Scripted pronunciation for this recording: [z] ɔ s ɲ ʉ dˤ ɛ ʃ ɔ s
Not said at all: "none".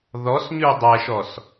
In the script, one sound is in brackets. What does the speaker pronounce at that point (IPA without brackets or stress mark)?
ð